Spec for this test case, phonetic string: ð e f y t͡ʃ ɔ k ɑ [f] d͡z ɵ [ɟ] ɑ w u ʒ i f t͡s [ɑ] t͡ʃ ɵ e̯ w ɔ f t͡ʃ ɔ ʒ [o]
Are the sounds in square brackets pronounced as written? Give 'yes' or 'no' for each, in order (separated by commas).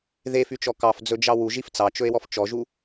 yes, no, yes, no